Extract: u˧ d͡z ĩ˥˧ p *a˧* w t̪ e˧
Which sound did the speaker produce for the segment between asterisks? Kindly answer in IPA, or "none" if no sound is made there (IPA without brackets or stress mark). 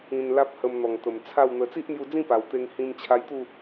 a˨˩